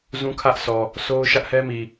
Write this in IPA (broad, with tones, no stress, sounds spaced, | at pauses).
z ũ˦ kʰ ä˦ ʔ s ɔ˨ | sʰ o˦ ʊ̯ ʃ ä˦ ʔ h ɛ˦ m i˨